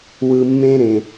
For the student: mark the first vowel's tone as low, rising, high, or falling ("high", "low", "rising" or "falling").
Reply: low